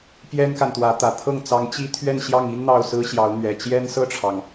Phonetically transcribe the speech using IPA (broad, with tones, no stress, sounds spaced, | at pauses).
p j ɛ˥ n k a˨ n t̪ w ä˧˥ t̪ ä˨˩ t̪ʰ ɤ˥˩ ŋ t͡s ɑ˧˥ ŋ t͡ɕ i˥ t̪ʰ ɥ ɛ˥˧ n ɕ j ɑ˥˩ ŋ i˥ n n̪ ɑ˥˩ ʊ̯ s ɹ̩˥ ɕ j ɑ˧˥ ʊ̯ n̪ ɥ ɛ˨˩ t͡ɕ j ɛ˥ n s ɤ˥˩ ʈ͡ʂʰ ɑ˩ ŋ